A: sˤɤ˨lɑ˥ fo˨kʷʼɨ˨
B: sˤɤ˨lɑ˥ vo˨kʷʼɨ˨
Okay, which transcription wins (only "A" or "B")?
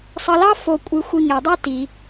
A